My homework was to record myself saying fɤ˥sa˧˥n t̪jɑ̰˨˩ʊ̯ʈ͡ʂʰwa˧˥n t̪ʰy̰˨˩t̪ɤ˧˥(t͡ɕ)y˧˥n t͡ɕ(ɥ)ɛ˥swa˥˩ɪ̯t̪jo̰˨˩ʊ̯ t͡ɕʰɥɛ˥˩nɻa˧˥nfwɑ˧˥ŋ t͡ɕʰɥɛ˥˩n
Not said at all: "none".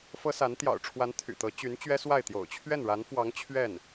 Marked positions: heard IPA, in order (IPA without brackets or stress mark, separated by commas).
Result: t͡ɕ, ɥ